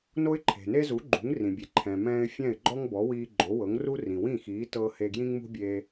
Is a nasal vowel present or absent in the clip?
present